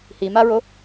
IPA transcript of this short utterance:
h i m a ɹ o

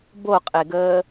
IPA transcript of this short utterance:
b o qʼ e ɡ əː

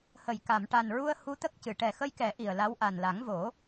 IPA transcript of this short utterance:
h ə˨˩˨ j k a˨˩˨ m ʈ a˨˩ n ɹ u˧ ə̯ h u˧ t̪ ə˦˥ k̚ c ɨ˨˩˨ ʈ ɛ˨˩ x ə˧ j k ɛ˨˩˦ ʔ i˨˩ ə̯ l a˧˥ w ʔ a˨˩ n l a˨˩˦ ŋ v o˨˩˦

